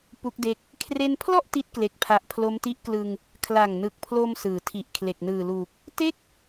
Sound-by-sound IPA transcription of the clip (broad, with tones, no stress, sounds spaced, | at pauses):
p u˦˥ k̚ d e˦˥ k̚ | kʰ r e˧ n pʰ l ɔ˥˩ ʔ t i˦˥ t̚ k l e˨˩ k̚ pʰ a˨˩ ʔ pʰ l o˦˥ m t i˦˥ ʔ k l ɯ˧ ŋ | kʰ l a˨˩ ŋ n ɯ˨˩ k̚ pʰ l o˧ m s ɯː˩˦ tʰ i˨˩ ʔ kʰ l e˨˩ k̚ n ɯː˨˩ l uː˨˩ k̚ | t e˥˩ k̚